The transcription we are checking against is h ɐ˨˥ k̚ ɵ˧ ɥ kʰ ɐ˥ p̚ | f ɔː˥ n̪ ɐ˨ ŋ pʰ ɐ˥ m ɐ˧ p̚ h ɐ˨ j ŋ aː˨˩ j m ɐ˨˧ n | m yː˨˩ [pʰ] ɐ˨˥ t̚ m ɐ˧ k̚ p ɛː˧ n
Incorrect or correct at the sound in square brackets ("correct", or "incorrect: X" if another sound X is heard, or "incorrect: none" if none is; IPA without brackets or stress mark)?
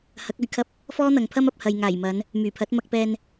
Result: correct